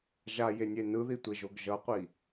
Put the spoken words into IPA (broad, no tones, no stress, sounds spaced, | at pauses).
ʒ a j e nʲ e n ɯ ð i tʷ e ʒ o ɡ ʒ ʌ qʷ i